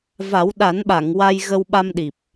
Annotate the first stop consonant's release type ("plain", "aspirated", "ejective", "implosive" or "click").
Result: implosive